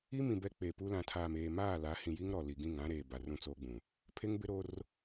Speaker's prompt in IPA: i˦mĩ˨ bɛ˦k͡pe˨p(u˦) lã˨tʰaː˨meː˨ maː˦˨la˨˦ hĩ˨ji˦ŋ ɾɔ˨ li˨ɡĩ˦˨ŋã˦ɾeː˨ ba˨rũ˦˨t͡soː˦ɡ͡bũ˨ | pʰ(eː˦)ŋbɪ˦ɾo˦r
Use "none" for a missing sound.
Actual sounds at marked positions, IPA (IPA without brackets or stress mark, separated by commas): u˦, e˦